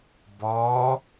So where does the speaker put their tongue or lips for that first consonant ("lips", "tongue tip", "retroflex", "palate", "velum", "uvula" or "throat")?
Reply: lips